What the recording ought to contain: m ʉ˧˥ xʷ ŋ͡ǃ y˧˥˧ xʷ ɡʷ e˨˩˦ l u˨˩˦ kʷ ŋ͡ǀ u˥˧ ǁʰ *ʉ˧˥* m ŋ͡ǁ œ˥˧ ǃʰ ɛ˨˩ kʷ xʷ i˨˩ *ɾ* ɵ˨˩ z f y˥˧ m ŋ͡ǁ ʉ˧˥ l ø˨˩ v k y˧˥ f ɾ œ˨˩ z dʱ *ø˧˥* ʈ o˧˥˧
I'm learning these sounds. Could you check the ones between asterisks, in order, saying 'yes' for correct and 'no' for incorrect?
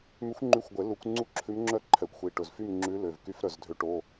yes, no, yes

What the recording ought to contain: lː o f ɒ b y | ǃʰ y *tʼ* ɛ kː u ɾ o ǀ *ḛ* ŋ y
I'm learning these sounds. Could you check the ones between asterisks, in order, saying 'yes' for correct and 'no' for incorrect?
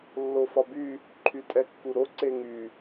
yes, no

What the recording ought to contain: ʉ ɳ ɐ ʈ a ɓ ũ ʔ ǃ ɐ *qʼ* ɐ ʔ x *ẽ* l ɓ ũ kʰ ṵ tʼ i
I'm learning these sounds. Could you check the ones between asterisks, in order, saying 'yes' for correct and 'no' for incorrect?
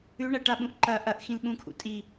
no, no

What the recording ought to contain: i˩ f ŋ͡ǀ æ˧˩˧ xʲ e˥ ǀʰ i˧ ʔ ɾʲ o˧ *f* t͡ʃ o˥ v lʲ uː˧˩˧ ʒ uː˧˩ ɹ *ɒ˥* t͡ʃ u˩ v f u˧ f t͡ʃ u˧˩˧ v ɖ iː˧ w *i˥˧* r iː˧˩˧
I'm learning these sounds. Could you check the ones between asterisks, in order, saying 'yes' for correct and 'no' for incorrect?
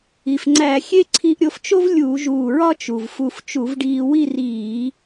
yes, yes, yes

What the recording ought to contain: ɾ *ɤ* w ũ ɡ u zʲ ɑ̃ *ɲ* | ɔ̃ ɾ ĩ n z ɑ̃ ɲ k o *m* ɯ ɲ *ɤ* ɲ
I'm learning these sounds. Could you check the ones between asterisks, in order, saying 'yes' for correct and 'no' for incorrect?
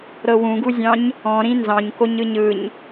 yes, yes, no, no

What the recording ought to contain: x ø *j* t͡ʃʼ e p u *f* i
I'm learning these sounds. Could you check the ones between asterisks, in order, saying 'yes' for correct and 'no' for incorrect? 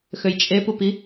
yes, no

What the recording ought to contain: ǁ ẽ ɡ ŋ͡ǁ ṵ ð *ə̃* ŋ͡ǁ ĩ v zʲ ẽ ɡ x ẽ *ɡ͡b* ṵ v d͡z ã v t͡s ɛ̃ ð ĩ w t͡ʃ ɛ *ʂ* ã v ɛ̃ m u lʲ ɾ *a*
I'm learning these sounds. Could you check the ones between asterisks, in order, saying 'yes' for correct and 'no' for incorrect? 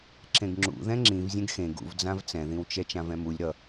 no, no, no, no

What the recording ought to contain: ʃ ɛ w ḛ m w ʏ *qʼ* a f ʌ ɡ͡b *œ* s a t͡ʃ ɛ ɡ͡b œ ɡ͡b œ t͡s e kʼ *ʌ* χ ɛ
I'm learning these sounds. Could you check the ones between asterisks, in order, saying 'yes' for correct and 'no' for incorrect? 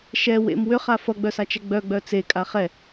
no, yes, no

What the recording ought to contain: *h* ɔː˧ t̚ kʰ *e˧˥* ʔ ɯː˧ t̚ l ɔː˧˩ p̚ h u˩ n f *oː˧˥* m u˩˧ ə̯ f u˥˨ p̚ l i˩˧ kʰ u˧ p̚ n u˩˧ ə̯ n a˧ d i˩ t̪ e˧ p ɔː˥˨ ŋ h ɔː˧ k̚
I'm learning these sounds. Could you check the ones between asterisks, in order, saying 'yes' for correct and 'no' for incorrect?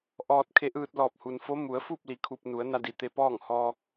no, yes, no

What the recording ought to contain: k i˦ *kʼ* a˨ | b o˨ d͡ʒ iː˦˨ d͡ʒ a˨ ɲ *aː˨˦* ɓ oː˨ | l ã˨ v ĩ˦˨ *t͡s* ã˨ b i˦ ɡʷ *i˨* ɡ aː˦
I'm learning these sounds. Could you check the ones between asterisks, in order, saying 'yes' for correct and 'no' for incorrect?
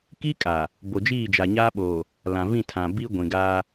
yes, no, no, no

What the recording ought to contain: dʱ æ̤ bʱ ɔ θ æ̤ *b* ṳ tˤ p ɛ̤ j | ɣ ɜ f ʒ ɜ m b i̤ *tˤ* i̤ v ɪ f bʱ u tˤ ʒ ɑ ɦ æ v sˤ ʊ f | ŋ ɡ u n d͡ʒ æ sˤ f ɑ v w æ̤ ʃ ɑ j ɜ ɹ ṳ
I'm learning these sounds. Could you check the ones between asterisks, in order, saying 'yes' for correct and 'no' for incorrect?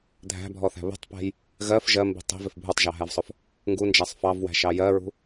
no, yes

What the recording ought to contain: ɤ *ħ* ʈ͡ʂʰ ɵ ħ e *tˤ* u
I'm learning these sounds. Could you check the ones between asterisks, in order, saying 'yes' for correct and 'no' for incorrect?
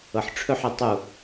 yes, yes

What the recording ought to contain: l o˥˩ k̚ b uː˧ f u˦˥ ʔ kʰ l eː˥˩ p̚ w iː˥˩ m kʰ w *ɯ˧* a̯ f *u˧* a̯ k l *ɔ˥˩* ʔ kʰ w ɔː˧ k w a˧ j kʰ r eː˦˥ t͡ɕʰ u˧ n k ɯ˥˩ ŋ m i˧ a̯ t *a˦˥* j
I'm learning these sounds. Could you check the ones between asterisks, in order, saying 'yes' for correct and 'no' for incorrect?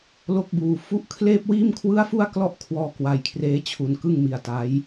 no, no, yes, yes

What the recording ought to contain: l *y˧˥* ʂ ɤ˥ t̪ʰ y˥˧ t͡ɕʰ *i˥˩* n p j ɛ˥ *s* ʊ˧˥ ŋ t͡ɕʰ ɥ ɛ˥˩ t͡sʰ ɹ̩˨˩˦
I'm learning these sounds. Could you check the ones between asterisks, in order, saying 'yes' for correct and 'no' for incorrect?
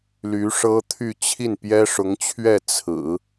yes, yes, no

